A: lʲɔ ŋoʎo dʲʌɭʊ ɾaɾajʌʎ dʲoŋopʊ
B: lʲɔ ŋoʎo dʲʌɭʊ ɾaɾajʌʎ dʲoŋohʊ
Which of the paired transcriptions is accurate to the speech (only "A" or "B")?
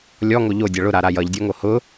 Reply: B